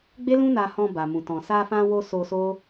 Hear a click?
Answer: no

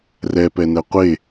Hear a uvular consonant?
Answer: yes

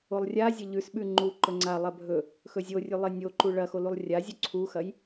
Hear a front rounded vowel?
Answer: no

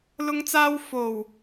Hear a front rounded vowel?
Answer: no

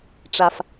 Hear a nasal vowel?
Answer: no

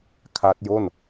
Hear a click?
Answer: no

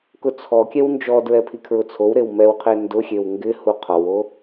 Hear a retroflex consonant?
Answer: no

